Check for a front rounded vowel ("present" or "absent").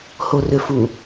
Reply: present